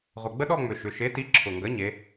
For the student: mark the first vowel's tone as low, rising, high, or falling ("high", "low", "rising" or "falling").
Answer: low